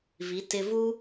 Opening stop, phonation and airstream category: plain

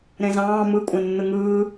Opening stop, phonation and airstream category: ejective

